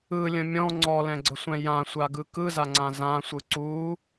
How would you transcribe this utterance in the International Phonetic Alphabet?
ɯlʲə̃ mʲɔ̃ ŋ͡ǀɔlɛ̃ɡ͡ǀəsʷɛ̃ jãsʷaɡɯ kɯzaŋ͡ǀã zãsʷɯ ǀu

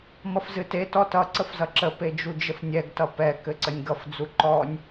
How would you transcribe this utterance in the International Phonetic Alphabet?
mʌfzɨte tɔtʌ ǀəfzʌǁə ped͡ʒud͡ʒəfnʲɛɡ tʌpɛ kɘǀənʲɡʌf d͡zuǃɔnʲ

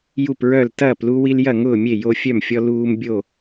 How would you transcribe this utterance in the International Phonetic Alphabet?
ju˥˨pɹœ˥˨l tɐː˥˨plu˦wi˦l jɐ˥˨ŋʊː˥˨ mʲe˥˨jo˦fʲœ˥˨mfʲɔ˦ luː˦m bʲo˥˨

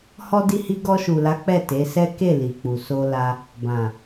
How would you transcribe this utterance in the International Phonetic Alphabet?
hɔ˧di˧hi˧ ɡɔ˧ʃu˨la˨˦ k͡pɛ˦˨te˨˦sɛ˦ ke˦˨li˨k͡pu˨ so˧la˧ | bã˨

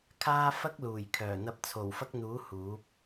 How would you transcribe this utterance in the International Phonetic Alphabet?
kʰaː˥ fɐ˥k̚luː˨˩jkʰœː˨˩ n̪ɐ˧p̚t͡sʰo˨˩wfɐ˥k̚n̪uː˨˥ huː˨˥p̚

